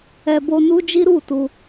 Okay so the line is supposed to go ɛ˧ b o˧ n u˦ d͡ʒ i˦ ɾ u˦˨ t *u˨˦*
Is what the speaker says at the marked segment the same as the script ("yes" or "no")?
no